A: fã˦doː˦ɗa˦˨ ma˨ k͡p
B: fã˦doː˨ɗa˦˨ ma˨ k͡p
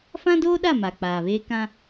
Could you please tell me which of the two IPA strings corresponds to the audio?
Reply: A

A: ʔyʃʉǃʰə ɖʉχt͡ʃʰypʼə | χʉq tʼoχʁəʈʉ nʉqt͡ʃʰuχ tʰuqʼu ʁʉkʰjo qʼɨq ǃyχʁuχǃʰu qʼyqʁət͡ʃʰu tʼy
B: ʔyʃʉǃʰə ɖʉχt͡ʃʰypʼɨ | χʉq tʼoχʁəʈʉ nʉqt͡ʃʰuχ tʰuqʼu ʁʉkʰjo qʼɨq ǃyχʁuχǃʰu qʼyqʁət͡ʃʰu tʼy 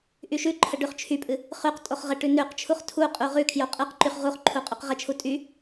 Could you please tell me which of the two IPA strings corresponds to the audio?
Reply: B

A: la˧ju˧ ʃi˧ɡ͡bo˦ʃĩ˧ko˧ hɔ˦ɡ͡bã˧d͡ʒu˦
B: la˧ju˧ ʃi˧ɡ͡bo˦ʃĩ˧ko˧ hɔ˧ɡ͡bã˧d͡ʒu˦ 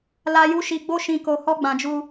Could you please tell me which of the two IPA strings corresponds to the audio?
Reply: A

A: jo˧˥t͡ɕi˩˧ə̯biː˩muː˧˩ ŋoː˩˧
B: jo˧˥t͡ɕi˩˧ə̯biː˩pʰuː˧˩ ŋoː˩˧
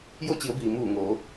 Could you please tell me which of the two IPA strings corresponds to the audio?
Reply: A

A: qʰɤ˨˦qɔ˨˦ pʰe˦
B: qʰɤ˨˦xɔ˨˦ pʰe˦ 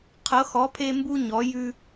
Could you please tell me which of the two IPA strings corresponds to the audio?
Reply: B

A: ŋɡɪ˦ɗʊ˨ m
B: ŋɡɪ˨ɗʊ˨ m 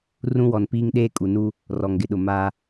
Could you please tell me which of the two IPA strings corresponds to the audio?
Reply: B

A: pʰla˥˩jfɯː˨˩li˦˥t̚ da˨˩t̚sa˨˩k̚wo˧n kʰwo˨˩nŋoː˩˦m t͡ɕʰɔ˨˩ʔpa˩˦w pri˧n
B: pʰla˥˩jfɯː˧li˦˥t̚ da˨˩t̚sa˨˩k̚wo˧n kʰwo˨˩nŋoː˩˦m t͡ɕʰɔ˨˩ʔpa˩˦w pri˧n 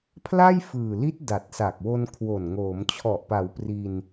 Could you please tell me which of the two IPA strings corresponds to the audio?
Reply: A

